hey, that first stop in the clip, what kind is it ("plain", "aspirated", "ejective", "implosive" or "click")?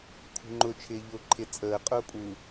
aspirated